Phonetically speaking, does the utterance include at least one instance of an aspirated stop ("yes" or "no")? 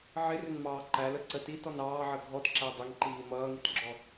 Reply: no